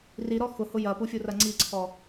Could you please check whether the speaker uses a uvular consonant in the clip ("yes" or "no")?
no